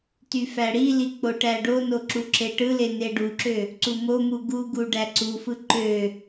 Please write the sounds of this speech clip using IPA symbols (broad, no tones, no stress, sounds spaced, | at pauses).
t y f æ ɽ i l i k͡p o ʈ æ ɖ o n o ǁ u ǁ e ʈ ɯ l e n e ɖ u ǁ ø | ǀ u m o m u ɡ u ɡ u ɖ æ ǀ u f ɯ ǃ ø